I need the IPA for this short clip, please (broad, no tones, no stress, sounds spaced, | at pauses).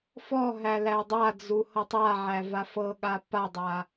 f ɔ ɦ æ l æ dˤ a d͡z u h ɤ tˤ a ʕ æ v a f ɤ ɠ a p a dˤ a